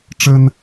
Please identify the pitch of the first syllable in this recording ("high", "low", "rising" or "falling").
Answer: high